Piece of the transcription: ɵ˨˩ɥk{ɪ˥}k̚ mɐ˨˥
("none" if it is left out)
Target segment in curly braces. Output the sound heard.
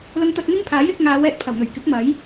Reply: ɪ˨˥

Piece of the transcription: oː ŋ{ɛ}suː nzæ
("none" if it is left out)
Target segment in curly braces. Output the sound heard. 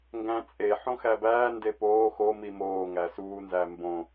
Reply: æ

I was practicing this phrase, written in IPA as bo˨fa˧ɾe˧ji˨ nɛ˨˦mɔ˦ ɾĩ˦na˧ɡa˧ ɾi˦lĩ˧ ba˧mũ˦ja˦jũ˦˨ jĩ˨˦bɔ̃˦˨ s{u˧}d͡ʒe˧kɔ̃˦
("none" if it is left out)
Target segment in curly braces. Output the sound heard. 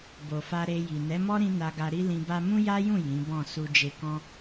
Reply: u˧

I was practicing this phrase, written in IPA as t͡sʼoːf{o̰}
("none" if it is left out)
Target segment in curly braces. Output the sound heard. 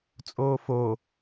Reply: o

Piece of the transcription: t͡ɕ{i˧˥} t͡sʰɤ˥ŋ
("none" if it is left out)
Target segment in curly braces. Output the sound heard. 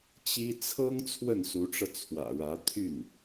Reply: i˥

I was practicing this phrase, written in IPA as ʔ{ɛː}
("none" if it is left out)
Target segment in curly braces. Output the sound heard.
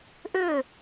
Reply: ʏː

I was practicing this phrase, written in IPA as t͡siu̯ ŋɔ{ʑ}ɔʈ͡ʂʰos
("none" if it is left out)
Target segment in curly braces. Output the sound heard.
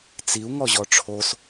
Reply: ʑ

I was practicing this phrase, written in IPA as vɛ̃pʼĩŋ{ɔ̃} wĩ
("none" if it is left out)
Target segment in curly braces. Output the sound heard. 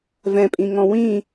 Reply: ɔ̃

